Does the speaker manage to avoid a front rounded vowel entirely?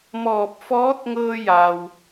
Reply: yes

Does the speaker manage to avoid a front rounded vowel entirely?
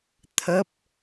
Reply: yes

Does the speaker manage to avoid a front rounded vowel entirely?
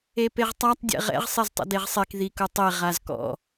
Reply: yes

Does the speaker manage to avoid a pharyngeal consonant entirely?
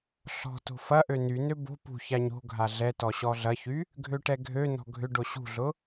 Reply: yes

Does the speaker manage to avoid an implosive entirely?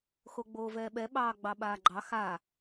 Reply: no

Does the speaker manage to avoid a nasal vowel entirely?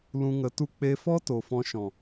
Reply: no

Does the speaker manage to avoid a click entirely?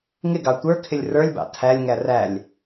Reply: yes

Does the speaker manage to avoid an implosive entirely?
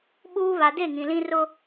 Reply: no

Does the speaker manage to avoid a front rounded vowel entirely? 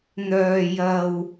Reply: no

